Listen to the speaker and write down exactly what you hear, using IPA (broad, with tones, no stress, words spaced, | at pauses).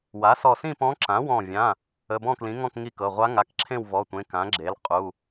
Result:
wa˩˥sɔ˧˩sĩ˥˨pɔ̃˧˥ ǁã˩˥wɔ̃˧˩vʲã˩˧˩ | ə˩˧˩bɔ̃˥˨klĩ˩˥ŋɔ̃˥˨k ŋi˥˨kɤ˩˧˩ ʁʷa˧˥ŋa˩˧˩kǁʰẽ˥˨w vɔ˩˧˩tʷẽ˩˧˩ kã˩˥ɡ͡ǁe˩˥l qʼu˩˧˩